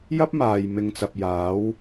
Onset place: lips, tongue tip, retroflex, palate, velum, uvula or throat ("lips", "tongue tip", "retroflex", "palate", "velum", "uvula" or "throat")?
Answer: palate